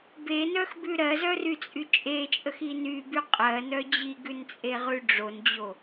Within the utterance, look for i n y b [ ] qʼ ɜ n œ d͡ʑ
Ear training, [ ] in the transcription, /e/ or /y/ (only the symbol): y